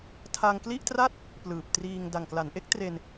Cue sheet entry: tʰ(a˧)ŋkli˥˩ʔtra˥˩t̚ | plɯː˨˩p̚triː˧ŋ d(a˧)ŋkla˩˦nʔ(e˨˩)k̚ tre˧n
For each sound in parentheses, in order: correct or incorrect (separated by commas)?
correct, incorrect, incorrect